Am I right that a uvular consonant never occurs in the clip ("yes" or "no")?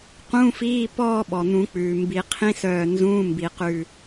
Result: no